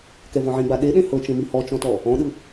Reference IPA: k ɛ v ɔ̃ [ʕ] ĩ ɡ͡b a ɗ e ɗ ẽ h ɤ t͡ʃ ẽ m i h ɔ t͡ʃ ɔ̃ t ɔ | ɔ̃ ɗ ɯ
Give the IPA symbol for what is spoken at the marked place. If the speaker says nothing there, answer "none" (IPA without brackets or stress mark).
ʕ